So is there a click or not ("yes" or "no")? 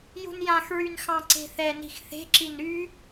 yes